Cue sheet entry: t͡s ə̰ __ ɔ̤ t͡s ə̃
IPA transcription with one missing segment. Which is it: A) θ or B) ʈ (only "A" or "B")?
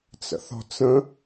A